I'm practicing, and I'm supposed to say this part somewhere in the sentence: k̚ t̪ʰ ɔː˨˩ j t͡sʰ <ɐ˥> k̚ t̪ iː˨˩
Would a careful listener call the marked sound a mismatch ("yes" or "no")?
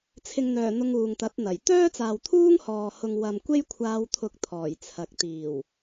yes